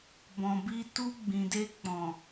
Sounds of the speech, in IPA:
b ɔ̃˨ b i˧ t u˧ ɡ͡b ĩ˨ d e˧ k͡p ɔ̃˨

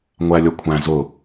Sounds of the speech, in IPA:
ŋʷ æ lʲ ʌ kʷʰ æ̃ z ʊ

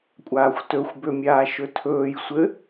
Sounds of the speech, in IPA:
kʷʼ aː xʷ t ɵ xʷ b ø mʲ aː ʃ ɵ tʰ ɵː j sʷ ɘ

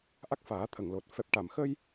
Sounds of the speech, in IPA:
ʔ a˦˥ k̚ f aː˨˩˦ t̪ʰ ə˨˩˨ ŋ l o˨˩ t̚ f ɛ˨˩ p̚ ʈ a˨˩˨ m x ə˧ j

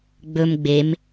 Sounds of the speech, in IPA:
ɡ͡b ɵ m ɡ͡b e m

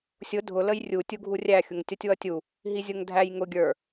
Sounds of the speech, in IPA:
sʲ ʊ dʱ ʊ l ə j rʲ u tʲ u ɡʱ u rʲ æ xʲ ʊ ŋ tʲ ʌ tʲ w ʌ tʲ u | ɦ i zʲ ʊ ŋ dʱ æ j ŋ ʊ ɡʲ ə˞

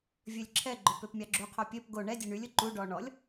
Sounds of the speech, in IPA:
vʲ ø lʲ ǁʰ ɛ ɡ͡ǃ ɵ p ø p mʲ ɑ ɡ͡ǁ u qʰ o pʲ ø p ɡ o ɳ ɛ dʲ ø ɳ y lʲ ɵ ǃ u ɖ ɔ ɳ ɔ lʲ

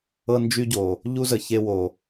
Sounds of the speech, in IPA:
ɤ˦ n d͡ʒ y˦ ɟ o˨ | ʎ u˦ z ə˨ ç e˧ w o˨

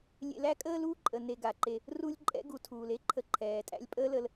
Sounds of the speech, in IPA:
lʲ ḛ˧ l æ˦ kʼ əː˦ l uː˦ ǃʼ ə˨ n e˧ ɡ a˨ ǃ e˧ | r u˦ lʲ ǃʼ ɛ̰˦ ɡ u˨˦ tʰ uː˨ l e˦ ǃʰ ə˧ ǃʰ ɛː˨ tʼ æ̰˦ lʲ pʼ əː˦ l ə˧ l

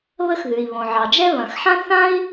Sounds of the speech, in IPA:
β ə˥ x ð ʉ˩ i̯ β õ˩ ʕ ɑ˩ d͡ʒ ɛ˥ β ɐ̃˩ x ħ ã˥ θ ã˥ i̯

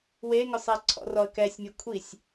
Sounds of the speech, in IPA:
w e ŋ ʊ sˤ ɛ ǀʰ ɔ̰ r ɔ ə̯ k ɛ sʲ mʲ ɛ kʷʰ i sʲ

